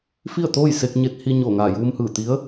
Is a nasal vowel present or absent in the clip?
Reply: absent